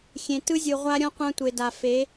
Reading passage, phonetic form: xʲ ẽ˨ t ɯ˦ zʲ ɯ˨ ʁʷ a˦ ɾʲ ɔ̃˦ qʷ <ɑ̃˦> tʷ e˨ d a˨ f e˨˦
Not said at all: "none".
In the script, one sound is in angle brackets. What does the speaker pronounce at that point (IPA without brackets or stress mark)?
ã˦